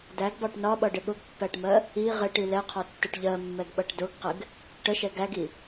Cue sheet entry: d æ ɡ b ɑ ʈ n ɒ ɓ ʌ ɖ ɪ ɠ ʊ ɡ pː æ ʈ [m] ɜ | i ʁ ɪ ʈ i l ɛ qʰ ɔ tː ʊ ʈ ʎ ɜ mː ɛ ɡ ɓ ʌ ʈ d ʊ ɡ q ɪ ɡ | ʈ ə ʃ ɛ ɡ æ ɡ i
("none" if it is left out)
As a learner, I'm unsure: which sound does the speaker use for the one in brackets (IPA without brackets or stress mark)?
m